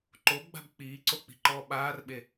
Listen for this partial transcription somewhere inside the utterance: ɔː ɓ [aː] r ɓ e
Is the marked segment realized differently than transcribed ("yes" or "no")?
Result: no